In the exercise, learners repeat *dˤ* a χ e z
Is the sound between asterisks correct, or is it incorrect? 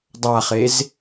correct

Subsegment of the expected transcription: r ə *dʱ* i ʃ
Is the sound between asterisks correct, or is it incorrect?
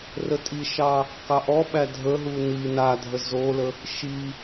incorrect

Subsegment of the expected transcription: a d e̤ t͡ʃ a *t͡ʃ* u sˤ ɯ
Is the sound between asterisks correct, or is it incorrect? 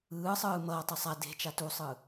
incorrect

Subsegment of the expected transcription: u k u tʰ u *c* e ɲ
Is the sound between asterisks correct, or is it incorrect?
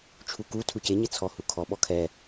correct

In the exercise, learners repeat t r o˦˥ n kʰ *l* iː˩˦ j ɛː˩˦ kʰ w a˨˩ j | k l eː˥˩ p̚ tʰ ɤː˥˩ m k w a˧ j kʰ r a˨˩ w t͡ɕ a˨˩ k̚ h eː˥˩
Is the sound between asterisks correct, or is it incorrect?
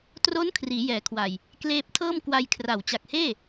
incorrect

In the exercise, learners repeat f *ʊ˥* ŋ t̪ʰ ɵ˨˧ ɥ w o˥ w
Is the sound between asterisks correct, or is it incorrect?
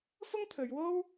correct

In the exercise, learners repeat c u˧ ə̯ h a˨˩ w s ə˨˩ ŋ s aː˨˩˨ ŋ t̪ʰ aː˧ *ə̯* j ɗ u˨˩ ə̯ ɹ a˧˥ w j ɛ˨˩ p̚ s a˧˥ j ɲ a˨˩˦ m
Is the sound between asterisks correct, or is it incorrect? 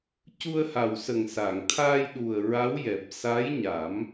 incorrect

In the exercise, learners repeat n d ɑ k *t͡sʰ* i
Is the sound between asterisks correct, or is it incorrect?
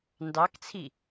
correct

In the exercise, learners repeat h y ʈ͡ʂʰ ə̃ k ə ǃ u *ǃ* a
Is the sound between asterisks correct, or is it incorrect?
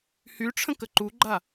incorrect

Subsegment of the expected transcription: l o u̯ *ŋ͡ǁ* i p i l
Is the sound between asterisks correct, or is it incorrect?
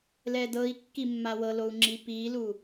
correct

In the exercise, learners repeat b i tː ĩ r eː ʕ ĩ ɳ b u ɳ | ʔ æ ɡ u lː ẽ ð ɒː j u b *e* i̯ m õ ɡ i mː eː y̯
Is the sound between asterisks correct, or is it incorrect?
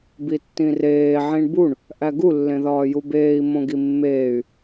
incorrect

